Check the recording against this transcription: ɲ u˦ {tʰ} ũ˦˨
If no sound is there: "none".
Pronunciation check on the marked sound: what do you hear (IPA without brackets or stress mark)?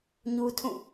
tʰ